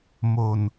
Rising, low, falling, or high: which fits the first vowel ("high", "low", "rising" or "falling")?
low